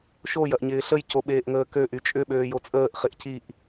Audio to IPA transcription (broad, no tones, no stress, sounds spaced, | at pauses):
ʃ o j ɐ ʔ ɲ ɪː ɬ ə j c o ɓ eː ʔ ŋ əː k ø ʔ y t͡ʃʼ ʏ ɓ øː j o t͡sʼ əː ʔ χ ɪ ʔ c i ʔ